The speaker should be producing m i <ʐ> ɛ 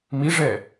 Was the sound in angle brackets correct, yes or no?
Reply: yes